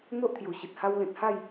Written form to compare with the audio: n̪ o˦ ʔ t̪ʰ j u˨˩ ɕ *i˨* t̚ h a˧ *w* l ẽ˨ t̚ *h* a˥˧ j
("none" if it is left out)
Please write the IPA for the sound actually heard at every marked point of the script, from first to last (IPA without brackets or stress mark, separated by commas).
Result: i˨, w, h